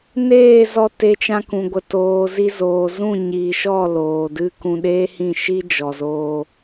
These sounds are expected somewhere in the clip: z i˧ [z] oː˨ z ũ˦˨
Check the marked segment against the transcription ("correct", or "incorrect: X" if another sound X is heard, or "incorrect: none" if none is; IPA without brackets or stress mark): correct